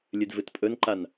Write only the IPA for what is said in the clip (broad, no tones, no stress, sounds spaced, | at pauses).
lʲ ɨ d v ɨ t pʼ ɵ n ǃ a n